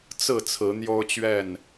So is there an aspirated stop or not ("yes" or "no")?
yes